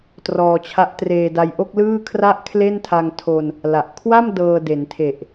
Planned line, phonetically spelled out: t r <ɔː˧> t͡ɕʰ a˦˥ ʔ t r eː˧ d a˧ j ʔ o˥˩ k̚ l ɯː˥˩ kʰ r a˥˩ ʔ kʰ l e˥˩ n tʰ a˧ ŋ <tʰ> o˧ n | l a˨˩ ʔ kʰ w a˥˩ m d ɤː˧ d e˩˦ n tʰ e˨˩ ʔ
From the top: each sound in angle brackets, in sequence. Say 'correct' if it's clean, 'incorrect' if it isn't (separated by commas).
correct, correct